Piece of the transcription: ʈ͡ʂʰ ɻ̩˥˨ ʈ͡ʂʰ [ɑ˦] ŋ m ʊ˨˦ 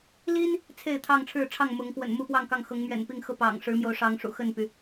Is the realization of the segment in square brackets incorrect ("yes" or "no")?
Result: yes